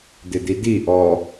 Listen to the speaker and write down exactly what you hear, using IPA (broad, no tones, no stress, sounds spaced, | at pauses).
d̪ ɪ d̪ i d̪ i ʔ ɔ